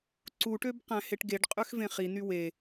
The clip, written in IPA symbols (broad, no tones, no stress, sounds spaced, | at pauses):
ǀ u ʈ ø b q æ̃ h e ʈ ɡ e ɖ qʼ ø x v ẽ χ i n y w e